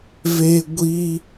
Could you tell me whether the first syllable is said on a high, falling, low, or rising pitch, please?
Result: high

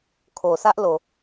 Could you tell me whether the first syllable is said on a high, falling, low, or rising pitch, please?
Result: low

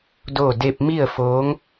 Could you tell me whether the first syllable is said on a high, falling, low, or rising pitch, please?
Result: falling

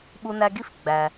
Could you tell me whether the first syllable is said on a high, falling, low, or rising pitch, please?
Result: high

